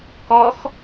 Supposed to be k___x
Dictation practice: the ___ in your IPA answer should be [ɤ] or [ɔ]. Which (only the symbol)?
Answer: ɔ